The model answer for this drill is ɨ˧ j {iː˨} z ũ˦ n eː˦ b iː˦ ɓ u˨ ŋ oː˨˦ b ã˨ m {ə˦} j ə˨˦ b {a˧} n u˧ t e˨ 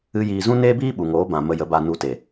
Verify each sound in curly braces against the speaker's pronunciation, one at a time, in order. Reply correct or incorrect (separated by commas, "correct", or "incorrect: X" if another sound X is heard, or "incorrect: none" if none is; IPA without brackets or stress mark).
correct, incorrect: ə˧, correct